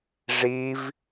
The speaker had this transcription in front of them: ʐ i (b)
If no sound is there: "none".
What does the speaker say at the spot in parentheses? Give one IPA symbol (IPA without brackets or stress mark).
v